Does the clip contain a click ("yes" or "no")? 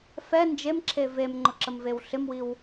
yes